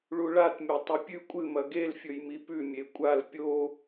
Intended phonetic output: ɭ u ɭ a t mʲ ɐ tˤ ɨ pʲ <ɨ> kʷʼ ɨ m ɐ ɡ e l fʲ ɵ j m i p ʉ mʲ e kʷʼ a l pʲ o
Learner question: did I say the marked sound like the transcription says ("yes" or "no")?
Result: no